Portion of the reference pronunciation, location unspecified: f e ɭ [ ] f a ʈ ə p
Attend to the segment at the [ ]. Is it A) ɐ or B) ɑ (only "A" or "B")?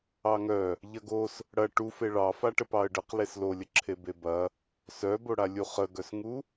B